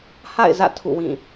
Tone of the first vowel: falling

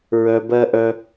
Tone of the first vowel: high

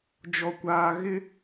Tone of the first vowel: low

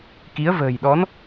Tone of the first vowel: rising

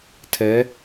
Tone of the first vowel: rising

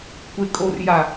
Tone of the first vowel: low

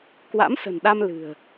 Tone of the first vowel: rising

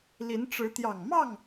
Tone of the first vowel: rising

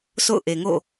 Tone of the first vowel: falling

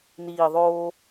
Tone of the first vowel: low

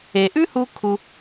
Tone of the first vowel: low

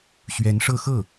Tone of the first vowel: rising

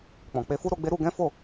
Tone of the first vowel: low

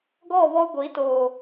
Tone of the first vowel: falling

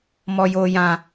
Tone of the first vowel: high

